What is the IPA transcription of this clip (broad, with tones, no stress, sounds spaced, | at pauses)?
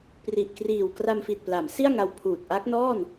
p r i˨˩ ʔ k r iː˨˩ w k r a˧ m f i˨˩ t̚ p l a˩˦ m s i˥˩ a̯ ŋ a˧ w pʰ uː˨˩ t̚ ʔ a˦˥ k̚ n ɔː˥˩ n